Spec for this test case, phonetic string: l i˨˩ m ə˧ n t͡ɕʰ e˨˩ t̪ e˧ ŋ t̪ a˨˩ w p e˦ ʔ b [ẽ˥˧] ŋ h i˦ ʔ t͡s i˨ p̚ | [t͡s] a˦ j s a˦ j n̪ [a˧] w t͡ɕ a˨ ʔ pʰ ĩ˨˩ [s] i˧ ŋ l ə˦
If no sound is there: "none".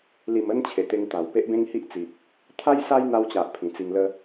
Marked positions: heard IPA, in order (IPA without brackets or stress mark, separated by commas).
ẽ˦, t̪ʰ, a˧, t͡s